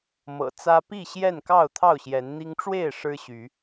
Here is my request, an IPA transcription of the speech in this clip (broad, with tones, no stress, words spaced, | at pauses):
mɤ̰˨˩t͡sä˦ pi˥˨ɕjɛ˥˨n kɑ˥˨ʊ̯t̪ʰɑ˥˨ʊ̯ɕjɛ˨˦n n̪i˦ŋ ʈ͡ʂwe˥˨ɪ̯ ʂɻ̩˦ɕy˨˦